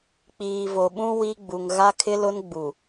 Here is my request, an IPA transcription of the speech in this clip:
k͡p iː˨ v o˨ ɓ ũ˦ w i˦ ɡ͡b u˨ ŋ ɣ a˦ kʰ ɪ˦ l ʊ˦ n ɡ͡b u˨

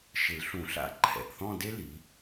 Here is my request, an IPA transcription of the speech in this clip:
ʃ ɪ˨˩˦ l ɬ ũ˨˩˦ ɬ a̰˨˦ ǃʰ ɛ̰˨˩ ʔ θ ɔ̃˥˧ d e˥ l i˨˦

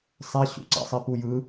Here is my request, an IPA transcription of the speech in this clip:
sˤ ɛ ɕ ṵ ǀ a̰ sˤ i p u j ɯ

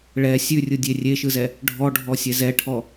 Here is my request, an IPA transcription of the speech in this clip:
ɭ ɛ sʲ ʉ rʲ ɯ dʲ e rʲ e ʃ ɯ z ɛ | ɖʱ ɔ ɖʱ ɔ sʲ ɛ z ɛ ʈʰ ɔ

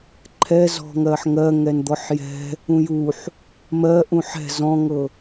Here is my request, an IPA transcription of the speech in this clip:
ǃʰ ɛ z ɔ̤ ŋ ɜ ħ ŋ ɜ ŋ ɛ n d̪ ɔ ħ j ɛ̤ | ũ j u ħ | m ɜ ʔ ũ ħ ɛ̤ z ɔ̃ ŋ ɤ

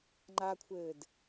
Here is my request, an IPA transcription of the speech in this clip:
ŋ͡ǃ a kʷʰ ɘː d

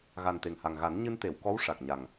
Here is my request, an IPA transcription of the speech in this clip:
ɣ a˨˩ n t̪ e˨˩ ŋ h a˨˩ ŋ ɣ a˨˩˦ n ɲ ɨ˧ n t̪ e˨˩˨ w k ɔ˧˥ w ʂ a˨˩ k̚ ɲ a˨˩ ŋ

